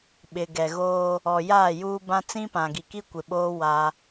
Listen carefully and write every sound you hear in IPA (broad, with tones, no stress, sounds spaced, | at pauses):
ɓ ɪ˨ ɡ ɛ˨ ɣ oː˦ | ɔ˨ j aː˦˨ j uː˦ b ã˦ t͡s ĩ˦ p ã˨ ɡ i˨ k i˦ kʷ ɪ˨ ɓ oː˦ w a˦